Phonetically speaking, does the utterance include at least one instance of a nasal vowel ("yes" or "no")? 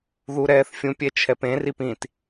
yes